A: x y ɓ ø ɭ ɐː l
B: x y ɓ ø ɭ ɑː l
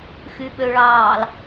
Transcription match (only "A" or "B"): B